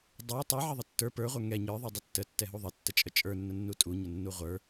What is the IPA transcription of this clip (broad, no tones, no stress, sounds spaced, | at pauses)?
dˤ ə˞ tˤ ə˞ ʕ ə ðˤ ə tː ə˞ p ə˞ ʁʷ ə˞ ŋ ɛ ɲ ə˞ ðˤ ə˞ dˤ ə tː ə tː ɛ ɦ u ðˤ ə tː ə t͡ʃʼ ə t͡ʃʼ ə˞ nː ə nː u tʼ u ɲ ə nː u ʁʷ ə˞